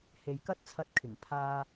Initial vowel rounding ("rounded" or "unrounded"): unrounded